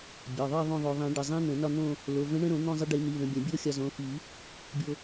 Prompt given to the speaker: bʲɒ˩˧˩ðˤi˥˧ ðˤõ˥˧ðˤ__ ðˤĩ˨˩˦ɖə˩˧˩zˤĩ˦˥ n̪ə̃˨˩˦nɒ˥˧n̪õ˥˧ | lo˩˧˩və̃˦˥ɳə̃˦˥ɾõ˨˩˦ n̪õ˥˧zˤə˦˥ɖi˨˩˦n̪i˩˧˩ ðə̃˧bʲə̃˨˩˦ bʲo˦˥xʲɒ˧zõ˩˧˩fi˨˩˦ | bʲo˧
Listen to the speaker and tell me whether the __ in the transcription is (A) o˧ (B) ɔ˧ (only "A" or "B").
A